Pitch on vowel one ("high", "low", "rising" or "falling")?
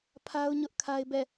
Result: high